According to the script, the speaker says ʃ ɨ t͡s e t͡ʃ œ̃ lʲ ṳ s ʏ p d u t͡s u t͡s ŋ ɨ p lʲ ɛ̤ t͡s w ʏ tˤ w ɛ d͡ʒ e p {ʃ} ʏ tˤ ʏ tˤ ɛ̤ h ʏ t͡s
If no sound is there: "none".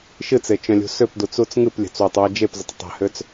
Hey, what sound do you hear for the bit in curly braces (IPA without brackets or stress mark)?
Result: z